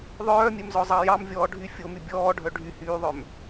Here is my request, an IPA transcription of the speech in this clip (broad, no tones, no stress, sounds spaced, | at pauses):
ðˤ œː mʲ ɛ m z ɔ zˤ ɑ j ɑ m vʲ ɔː ɖʱ y fʲ o m y bʲ ɔː ɖʱ œ ɖʱ y h yː ðˤ œ m